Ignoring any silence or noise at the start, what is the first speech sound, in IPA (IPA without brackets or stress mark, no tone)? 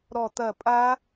ɾ